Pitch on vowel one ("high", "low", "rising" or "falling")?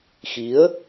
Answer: rising